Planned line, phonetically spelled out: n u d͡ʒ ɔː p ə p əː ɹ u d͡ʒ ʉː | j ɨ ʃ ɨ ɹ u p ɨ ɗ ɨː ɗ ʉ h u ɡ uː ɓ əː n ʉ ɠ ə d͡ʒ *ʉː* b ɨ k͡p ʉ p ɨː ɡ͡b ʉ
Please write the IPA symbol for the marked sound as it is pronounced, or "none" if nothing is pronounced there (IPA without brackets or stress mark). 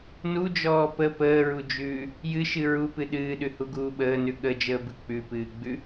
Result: əː